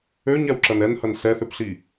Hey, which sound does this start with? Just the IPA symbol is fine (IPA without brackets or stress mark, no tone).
ø